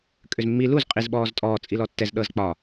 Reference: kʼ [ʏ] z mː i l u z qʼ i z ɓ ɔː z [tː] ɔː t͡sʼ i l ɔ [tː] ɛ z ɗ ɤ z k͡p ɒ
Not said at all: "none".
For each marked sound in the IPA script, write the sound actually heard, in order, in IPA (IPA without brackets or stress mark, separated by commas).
ʏ, tʼ, tː